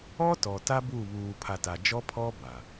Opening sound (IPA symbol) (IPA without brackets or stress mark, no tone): ɔ